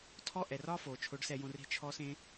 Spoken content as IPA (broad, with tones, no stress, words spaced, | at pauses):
tʰɔ˥ʔɛ˩r ɒ˥fo˩ t͡ʃʰo˧˥ɖsɛ˧jõ˧re̤˥ t͡ʃʰɔ˥sẽ˥